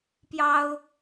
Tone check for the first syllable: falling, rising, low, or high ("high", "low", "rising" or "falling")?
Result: high